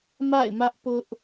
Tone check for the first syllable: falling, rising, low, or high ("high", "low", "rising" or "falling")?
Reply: falling